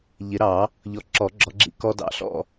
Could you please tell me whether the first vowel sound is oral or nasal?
oral